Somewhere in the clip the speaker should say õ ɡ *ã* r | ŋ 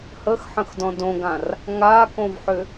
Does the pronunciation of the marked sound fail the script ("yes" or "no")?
no